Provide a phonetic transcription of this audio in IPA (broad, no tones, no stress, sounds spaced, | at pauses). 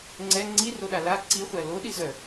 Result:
ŋ͡ǀ ɛ ŋ͡ǀ i r o ɗ a l a ǀ i χʷ æ l o ɗ i z œ